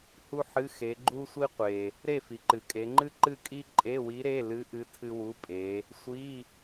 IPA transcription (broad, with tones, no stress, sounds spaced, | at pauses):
h u˥ ħ ɨ˧˥˧ x e˩˧ ɡ͡ǃ u˥ sʷ i˥ qʷ e˩ | ɾ e˥˨ f i˩ ǃ ɨ˩ kʼ e˩˧ ŋ͡ǃ ɨ˥ ǃ ɨ˥˨ kʼ i˥ ǃʼ e˧˥˧ w i˧˥ ɾ e˧˥˧ l ɨ˧˥ ʔ ɨ˧˥ tʰ ɨ˥ w u˧˥˧ pʼ e˩˧ | sʷ i˧˥˧